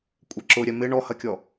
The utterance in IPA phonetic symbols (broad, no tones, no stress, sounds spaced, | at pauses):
kʷʼ ɛ ǁ ʊ ɾʲ ɛ m ɪ ɳ ɔ h ɐ kʲ ɔ